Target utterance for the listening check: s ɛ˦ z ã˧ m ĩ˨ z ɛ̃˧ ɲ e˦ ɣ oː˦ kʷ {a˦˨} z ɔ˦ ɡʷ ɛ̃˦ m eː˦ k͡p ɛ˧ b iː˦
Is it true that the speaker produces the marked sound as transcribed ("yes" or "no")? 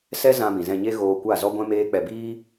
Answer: yes